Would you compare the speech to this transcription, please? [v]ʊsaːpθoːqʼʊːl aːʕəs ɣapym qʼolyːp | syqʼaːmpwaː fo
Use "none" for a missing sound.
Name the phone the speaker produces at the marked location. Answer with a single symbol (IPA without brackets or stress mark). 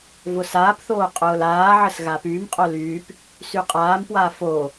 v